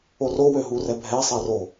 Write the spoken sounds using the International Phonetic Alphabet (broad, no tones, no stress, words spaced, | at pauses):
orowø ɦurɛbʱɛsˤɛ ro